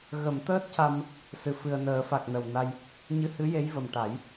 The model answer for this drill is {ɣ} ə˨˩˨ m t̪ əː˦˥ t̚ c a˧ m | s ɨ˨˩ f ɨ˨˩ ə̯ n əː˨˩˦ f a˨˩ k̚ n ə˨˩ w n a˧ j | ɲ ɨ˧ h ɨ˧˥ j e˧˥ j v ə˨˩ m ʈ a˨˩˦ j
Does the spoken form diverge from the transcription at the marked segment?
no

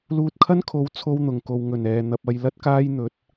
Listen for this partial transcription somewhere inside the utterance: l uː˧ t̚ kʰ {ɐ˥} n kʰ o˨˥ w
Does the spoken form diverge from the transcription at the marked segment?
no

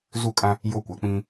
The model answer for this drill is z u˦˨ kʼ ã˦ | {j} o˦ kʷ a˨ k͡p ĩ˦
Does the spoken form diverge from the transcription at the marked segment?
no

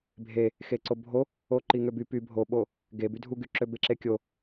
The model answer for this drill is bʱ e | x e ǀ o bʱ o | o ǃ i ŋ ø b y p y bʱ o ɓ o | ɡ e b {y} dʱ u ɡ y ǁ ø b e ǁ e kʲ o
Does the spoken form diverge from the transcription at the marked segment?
no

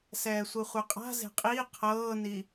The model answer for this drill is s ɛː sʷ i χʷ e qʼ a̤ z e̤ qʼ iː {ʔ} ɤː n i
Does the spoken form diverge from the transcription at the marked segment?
yes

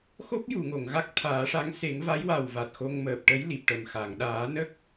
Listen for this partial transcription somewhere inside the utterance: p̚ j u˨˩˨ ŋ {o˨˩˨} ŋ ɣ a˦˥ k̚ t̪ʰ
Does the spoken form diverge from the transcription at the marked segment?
no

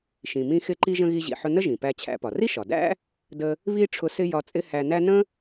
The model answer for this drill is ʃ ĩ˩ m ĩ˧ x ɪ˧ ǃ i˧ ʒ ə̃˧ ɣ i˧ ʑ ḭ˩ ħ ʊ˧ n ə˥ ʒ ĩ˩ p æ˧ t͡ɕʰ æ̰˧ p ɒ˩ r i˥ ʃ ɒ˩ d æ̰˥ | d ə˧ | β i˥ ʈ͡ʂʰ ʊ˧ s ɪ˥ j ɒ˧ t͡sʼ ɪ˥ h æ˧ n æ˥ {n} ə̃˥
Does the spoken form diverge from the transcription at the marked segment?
no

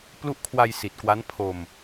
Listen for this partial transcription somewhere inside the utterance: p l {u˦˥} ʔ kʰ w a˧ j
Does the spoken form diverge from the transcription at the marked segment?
no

